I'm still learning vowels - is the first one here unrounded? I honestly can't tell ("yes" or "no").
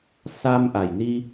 yes